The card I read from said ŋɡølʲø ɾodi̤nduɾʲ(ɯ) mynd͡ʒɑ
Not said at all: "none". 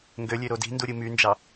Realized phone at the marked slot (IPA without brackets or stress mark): ɯ